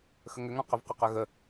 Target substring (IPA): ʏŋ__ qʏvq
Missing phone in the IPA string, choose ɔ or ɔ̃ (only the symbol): ɔ̃